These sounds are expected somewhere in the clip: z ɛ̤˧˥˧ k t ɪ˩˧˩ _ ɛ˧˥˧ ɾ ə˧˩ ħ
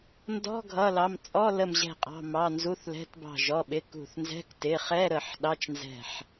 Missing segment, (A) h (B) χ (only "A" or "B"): B